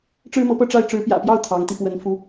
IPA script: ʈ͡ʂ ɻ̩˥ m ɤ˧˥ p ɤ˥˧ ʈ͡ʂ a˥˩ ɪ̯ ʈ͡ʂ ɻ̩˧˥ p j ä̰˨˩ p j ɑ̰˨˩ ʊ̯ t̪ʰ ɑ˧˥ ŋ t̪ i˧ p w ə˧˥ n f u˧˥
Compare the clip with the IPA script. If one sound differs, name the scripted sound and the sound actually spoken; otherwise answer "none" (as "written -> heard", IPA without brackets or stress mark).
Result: ɑ̰˨˩ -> ɑ˥˩